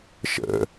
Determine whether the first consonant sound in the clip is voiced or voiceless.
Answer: voiceless